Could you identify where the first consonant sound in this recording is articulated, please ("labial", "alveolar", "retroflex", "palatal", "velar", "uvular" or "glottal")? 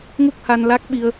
velar